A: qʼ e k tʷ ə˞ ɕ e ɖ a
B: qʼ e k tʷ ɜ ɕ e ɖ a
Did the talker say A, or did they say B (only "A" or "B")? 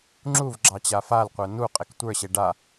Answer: A